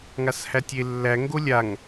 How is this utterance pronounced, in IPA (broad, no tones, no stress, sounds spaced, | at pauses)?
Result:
ŋ a s h æ tʲ e lː æ ŋ ɡ o lʲ a ŋ